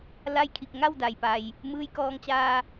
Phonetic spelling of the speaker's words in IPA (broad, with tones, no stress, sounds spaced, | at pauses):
l a˥˨ j kʰ i˥˨ k̚ ŋ a˥˨ w d a˩ j p a˩ j | m ɯː˧ j k ɔː˧ ŋ t͡ɕ aː˧